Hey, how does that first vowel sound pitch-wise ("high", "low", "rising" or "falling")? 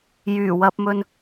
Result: low